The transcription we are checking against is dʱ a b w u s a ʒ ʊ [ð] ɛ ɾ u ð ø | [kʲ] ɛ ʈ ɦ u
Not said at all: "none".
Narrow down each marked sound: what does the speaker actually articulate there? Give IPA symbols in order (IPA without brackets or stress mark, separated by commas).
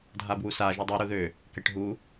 dˤ, k